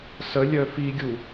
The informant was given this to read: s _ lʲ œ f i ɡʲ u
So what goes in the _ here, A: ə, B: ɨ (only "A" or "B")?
A